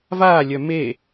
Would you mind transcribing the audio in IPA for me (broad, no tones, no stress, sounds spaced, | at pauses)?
v aː lʲ œ m e